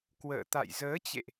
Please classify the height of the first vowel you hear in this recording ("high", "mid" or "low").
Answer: mid